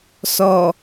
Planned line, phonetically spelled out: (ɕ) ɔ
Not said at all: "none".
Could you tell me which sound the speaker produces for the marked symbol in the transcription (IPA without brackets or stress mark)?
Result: s